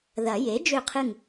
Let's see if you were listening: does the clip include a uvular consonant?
yes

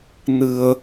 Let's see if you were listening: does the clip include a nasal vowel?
no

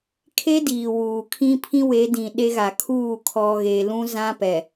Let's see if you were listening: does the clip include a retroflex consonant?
no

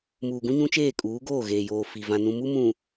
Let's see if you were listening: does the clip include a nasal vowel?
yes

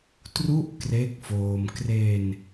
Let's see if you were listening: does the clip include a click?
no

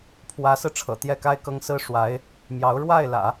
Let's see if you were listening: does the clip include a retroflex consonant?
yes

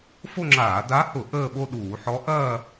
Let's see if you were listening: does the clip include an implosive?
yes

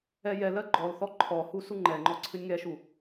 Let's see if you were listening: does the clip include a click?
yes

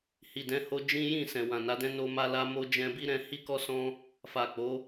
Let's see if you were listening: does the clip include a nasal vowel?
yes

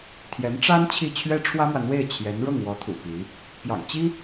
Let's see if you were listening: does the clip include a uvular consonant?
no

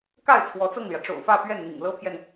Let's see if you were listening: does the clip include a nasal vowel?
no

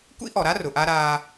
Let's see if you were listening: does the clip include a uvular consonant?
no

